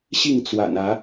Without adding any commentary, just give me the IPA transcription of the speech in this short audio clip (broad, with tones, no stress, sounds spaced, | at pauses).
ɕ i˥˨ ŋ t͡s w a̰˨˩ n ä˨˦